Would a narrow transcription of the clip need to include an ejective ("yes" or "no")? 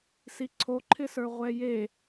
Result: no